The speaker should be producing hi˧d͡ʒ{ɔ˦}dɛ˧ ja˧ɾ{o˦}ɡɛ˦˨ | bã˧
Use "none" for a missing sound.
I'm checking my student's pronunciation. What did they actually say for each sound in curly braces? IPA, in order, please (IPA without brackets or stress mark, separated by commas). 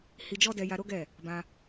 ɔ˦, o˦